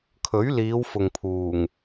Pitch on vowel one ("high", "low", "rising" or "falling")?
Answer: rising